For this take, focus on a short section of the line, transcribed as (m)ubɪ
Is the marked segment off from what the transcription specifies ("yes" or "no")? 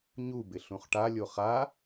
yes